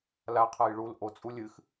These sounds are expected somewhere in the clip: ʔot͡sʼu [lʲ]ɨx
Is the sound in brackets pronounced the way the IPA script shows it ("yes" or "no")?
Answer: yes